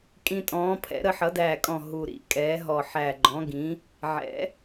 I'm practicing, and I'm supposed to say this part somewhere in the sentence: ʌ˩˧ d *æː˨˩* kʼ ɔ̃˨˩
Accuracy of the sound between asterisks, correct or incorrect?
correct